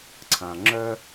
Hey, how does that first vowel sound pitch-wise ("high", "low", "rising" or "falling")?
low